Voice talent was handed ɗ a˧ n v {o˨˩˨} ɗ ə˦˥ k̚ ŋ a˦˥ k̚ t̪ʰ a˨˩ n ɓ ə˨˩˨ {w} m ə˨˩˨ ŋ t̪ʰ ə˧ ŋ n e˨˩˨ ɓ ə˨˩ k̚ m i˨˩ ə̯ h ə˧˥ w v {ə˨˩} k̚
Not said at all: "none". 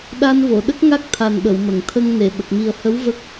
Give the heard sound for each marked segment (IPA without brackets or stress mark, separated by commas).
o˨˩˨, w, ə˦˥